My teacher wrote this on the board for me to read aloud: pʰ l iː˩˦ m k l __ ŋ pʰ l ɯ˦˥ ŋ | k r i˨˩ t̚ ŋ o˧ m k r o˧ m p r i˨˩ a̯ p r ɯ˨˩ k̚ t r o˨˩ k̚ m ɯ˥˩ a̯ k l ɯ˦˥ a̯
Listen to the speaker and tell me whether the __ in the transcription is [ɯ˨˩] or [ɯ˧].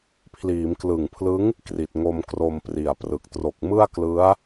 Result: ɯ˨˩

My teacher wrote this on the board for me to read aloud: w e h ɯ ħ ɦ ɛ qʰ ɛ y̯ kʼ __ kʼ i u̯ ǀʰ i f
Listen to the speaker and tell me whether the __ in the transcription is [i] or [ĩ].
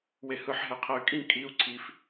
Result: ĩ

